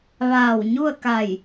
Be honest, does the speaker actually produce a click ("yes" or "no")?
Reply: no